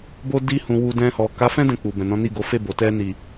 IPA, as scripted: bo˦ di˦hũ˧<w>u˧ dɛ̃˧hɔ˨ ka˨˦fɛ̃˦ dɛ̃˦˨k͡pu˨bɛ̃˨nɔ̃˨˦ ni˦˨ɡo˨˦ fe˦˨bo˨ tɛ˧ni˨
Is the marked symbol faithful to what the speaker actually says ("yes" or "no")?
yes